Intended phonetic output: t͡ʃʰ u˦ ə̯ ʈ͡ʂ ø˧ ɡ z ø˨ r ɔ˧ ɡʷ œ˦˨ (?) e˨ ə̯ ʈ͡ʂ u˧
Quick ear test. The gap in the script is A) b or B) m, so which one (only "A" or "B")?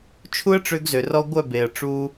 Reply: A